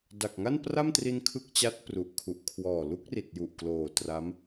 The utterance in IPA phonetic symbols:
d a˨˩ k̚ ŋ a˥˩ n p r a˥˩ m t r i˧ n kʰ ɯ˥˩ k̚ t͡ɕ a˦˥ t̚ p r u˨˩ ʔ kʰ u˨˩ ʔ kʰ w ɔː˨˩ l u˦˥ k̚ r i˨˩ t̚ j u˨˩ ʔ k l oː˨˩ t r a˦˥ m

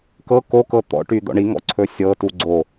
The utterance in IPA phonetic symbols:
k ɤ k o k ɤ t̪ ɔ̰ ʈ y d̪ ɔ̰ ɳ i ŋ ɔ̰ ǀʰ ɵ sʲ ɤ t u ɡ͡ǀ o

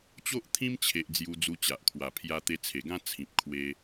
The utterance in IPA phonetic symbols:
t͡ɕ o˦ ʔ t̪ʰ ĩ˦ m t͡ɕʰ e˨ ʔ d͡z j u˧ d͡z u˧ t͡ɕ a˨ ʔ kʰ w a˨˩ pʰ j a˧ t̪ e˧ t͡sʰ e˨˩ ɡ ã˦ t͡sʰ ĩ˨ p̚ kʰ w e˧

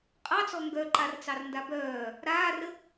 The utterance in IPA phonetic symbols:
qʼ ɑ t͡s ɔ ŋ ɡ œ ǃ a r t͡s ɑ r n d a b œː | ɾ aː r ə

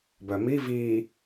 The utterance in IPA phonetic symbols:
b œ m i v i

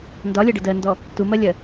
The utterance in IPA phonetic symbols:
n d ɒ lʲ ɐ ɖ ə d ɜ n d ɔ | t u m ɜ lʲ ɜ

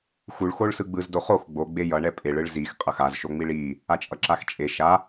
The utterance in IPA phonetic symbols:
x u ɭ x o ɭ s ɯ ɡ͡b ɯ z d o χ o x ɡ͡b o ɡ͡b e j ʌ ɳ ɛ pʼ e ɭ ɯ ɭ z i x qʼ ʌ x a z ʃ o ŋ͡m i ɭ i | a t͡ʃʼ ʌ ǁ a x t͡ʃʼ e ʃ a

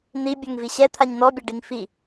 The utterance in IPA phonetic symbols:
n̪ i bʲ ɛ ŋ v i ɕ ɛ t̪ʰ a ɲ n̪ ɔ bʲ a ɖ i ŋ f i

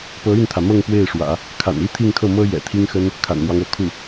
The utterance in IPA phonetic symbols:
p ɤ˧˥ y˥˩ n t̪ʰ ä˩ m ɤ˥˧ ŋ p w e˥˩ ɪ̯ ʂ w ä̰˨˩˦ | kʰ a̰˨˩ n i˥ t̪ʰ i˥˧ ŋ kʰ ɤ˥˩ m ɤ˥ j ɛ̰˨˩ t̪ʰ i˥ ŋ x ə˥ n | kʰ a̰˨˩ n m w ɑ˦ ŋ ɤ˧˥ kʰ u˥˩

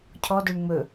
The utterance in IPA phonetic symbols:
cʰ ɔ d ɵ ɳ ŋ͡m ɵ

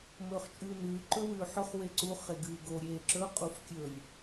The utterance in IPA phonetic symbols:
m ɵː χ t͡ʃʼ ʉː n ʉː ǃ ɵ w ʉː ħ ɵ χ w e ǀ u χ e ɡ ɨː ɡ o ɾʲ eː ǁ ɵ qʼ u f kʲ ɵ lʲ

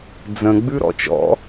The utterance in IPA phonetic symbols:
d͡z ə̃ ɡ͡b ʉ ɾ ɔ̰ t͡ʃ ɔ̰

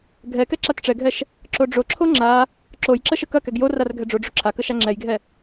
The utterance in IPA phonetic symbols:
ɡʱ ɛ k ɛ ǁ a t ʈ͡ʂ ɛ ɡʱ ɛ ʃ | ǁ o ɖ͡ʐ o ǁʰ o ŋ͡ǁ a | ǁ o j ǁ ə ʃ ə k ɐ k ɛ ɡ j o r a r ɡʱ ɛ ɖ͡ʐ o ɖ͡ʐ o ǁʰ a k ə ʃ a ŋ͡ǁ ɛ j ɡʱ ɛ

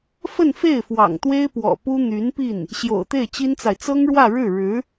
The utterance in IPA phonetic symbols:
f ə˥˧ n f e˥˩ ɪ̯ f w ɑ̰˨˩ ŋ t̪ w e˥ ɪ̯ p w ɔ̰˨˩ p u˥ n̪ y˧˥ n p i˥˩ n | ɕ j o̰˨˩ ʊ̯ t̪ e˥˩ ɪ̯ t͡ɕ i˥ n t͡s a˨ ɪ̯ t͡s ɤ˥ ŋ ɻ w ä˥˧ ɻ ɻ̩˥˩ ɻ ɻ̩˧˥

